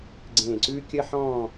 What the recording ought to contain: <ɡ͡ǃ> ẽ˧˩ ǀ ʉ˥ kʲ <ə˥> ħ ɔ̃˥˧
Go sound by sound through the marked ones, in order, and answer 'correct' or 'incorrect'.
incorrect: ɡ͡ǀ, correct

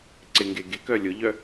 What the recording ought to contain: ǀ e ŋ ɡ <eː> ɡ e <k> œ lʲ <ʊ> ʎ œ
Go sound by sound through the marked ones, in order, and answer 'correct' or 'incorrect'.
incorrect: e, correct, correct

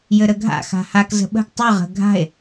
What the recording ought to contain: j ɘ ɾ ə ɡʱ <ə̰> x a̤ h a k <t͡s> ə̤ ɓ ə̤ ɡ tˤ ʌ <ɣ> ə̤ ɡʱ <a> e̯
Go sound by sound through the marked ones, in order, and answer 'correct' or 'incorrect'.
incorrect: a̰, incorrect: z, incorrect: ʁ, incorrect: a̤

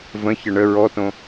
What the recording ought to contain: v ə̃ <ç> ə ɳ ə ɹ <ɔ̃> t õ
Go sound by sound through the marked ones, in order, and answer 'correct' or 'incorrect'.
correct, incorrect: ɔ

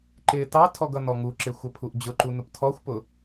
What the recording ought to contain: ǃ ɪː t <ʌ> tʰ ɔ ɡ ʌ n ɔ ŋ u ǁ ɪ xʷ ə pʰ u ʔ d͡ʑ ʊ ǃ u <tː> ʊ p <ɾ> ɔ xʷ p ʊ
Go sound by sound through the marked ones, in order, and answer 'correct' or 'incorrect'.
incorrect: ɑ, incorrect: n, incorrect: tʰ

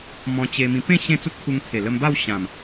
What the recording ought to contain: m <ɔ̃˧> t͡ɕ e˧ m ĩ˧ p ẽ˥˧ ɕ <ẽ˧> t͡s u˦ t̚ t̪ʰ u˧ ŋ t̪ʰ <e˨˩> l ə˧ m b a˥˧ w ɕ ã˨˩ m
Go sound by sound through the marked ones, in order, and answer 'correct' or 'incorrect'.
correct, incorrect: ẽ˥˧, correct

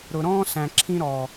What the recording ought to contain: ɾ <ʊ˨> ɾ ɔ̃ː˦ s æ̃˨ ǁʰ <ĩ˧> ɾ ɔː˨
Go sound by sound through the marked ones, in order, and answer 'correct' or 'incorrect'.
correct, correct

